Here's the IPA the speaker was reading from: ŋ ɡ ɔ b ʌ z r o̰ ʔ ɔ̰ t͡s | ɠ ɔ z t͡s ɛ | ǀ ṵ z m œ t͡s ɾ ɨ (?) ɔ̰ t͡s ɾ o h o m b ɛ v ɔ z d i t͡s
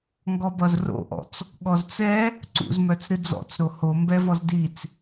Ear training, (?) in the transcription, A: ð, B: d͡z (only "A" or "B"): B